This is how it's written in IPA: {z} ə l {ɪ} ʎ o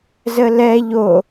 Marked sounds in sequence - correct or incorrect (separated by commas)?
correct, incorrect